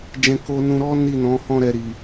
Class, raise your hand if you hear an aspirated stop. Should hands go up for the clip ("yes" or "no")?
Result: no